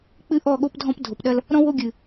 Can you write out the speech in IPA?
k͡pɨ˦ʔɔ˦˨ɠo˦pdʱɔ̃˦p dʱo˨pɗɐ˦l | ɾɔ̃˦wo˦ɡʲɨ˨

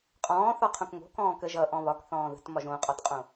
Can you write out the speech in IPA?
qʼɔ̃ː θɒqʰõkŋo̤ kɔ̃ːkəʒ ʌʔɔ̃ βɒk θɔ̃ːðə̤tmɒʒ õqʼɒtqʼõ

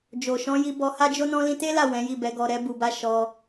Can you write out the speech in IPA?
d͡ʒo˨ʃɔ̃˨˦ji˧ bɔ˧ha˦d͡ʒo˦nɔ̃˦ lĩ˧te˦la˦˨ wɛ̃˨˦ji˦˨bɛ˨˦ ɡɔ˧ɾɛ˦bu˧ba˦ ʃɔ˧

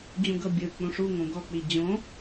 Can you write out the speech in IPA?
d͡ʑũɡɤbʲɯk͡pũ ʂuŋõ ɡɔk͡pi d͡ʑõ

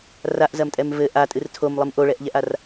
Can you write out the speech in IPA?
raʔzɐmtʼɛm vɘ ʔatʼɨr tʰomlˠɨm ʔoɭɛʔʎɛʔar

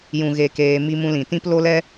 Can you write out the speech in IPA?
jũ˨ɣe˨keː˨ mi˧mũ˧lĩ˨tĩ˦p lo˦lɛ˦

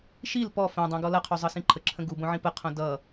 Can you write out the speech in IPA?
ʃil pɔ fɛ̃dˤĩɡ ɔlʌqʰu zˤɤsĩǃʰəǁʰə̃ ɡubõʕĩ pəqʰõ dʌ

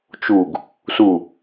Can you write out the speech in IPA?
t͡ʃuɡ | su

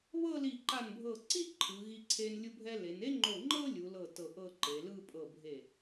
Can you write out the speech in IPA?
βɤ˥˧li˧˩ǃa˧˩nbʱɤ˧˩ ǀi˥˧ ǃʰɯ˩˧ɣi˧ǀʰe˧n lʲu˧bʱɛ˧le˩˧n e˥ŋ͡ǃo˧˩ŋ͡ǃɤ˥ lʲu˩˧lɤ˧˩ tɤ˧˩ʔɤ˥˧ ǃe˩˧lɯ˥˧ pʼɤ˧˩ bʱe˧˩

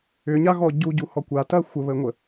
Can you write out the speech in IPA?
ʏɲaɣɔ ɟuɟuhɔ kʷatɐ xʷəβəŋʷə

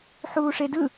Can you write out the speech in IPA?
ħuːʂedɯ

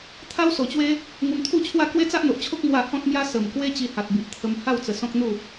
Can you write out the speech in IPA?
t̪ʰa˦wso˨˩t͡ɕwe˦ | ŋu˧mt̪ʰu˥˧t͡ɕʰwa˥˧ kwe˦t͡sa˦ʔn̪o˨ʔt͡ɕʰo˦k̚ mwa˥˧ hɔ̃˦t̚mja˦ sə˨˩mkwe˦ t͡ɕi˧ha˨t̚bi˨ʔt̪ʰə˧m ha˥˧w t͡sə˧sɔ̃˦k̚n̪u˥˧

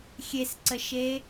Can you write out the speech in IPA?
xʲesǀəʃe

